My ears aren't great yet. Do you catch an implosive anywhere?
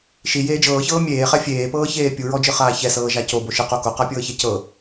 no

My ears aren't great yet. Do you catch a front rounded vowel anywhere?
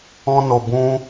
no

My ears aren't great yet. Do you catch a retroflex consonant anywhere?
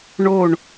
yes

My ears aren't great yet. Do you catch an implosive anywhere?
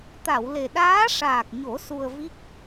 yes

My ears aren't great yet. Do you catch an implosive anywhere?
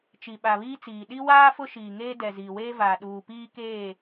yes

